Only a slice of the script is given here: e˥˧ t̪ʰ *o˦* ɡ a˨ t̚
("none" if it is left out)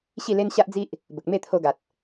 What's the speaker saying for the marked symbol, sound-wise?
o˧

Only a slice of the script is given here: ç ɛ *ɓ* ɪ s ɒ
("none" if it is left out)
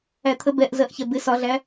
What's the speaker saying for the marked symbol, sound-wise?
b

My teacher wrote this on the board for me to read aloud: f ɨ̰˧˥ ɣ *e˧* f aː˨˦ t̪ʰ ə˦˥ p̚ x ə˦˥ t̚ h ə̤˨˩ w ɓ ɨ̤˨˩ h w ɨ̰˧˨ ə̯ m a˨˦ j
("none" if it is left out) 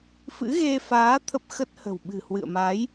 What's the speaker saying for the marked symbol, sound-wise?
e˧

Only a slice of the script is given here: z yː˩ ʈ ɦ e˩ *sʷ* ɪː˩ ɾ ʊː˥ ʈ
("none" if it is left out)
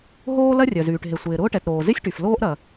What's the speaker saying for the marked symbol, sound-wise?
sʷ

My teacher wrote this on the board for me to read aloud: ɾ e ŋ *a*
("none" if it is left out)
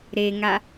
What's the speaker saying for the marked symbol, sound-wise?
a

